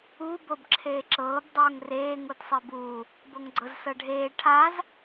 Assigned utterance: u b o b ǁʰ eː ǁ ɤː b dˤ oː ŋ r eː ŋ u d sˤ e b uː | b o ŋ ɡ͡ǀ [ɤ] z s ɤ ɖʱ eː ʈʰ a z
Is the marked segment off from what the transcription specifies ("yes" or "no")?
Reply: no